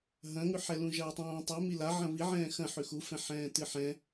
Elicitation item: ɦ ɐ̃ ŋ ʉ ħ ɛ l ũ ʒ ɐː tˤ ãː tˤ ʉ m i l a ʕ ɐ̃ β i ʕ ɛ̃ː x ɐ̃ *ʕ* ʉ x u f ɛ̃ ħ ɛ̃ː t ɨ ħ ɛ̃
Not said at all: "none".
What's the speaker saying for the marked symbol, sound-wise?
ħ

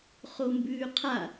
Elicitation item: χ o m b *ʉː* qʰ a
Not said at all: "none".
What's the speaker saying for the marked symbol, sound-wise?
ʉː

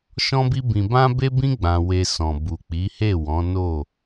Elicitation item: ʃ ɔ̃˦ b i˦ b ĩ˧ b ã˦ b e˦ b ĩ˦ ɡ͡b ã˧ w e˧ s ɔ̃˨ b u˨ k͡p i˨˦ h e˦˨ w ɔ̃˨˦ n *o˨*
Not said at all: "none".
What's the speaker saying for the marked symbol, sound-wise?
o˦˨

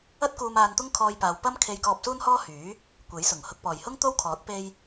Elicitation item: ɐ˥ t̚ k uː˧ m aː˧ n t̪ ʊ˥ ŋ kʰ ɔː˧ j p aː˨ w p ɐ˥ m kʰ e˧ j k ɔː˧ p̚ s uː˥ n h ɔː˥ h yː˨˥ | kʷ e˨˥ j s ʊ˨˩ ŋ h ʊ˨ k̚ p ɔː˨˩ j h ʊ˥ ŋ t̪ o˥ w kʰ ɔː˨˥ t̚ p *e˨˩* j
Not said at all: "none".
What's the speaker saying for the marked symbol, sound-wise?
e˧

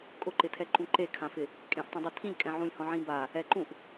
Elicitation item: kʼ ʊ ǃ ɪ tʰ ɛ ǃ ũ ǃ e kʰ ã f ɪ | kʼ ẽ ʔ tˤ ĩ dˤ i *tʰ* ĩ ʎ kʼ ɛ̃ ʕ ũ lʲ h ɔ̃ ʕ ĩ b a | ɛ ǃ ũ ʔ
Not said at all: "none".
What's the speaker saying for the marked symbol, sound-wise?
tʰ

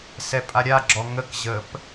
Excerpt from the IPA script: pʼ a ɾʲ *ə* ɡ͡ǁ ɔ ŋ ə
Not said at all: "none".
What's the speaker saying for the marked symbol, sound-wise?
a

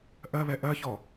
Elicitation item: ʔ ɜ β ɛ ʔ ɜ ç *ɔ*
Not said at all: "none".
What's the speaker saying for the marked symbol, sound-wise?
ɔ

